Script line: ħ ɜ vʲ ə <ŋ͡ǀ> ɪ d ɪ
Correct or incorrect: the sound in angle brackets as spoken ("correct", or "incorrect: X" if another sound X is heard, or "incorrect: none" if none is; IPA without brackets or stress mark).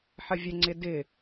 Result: correct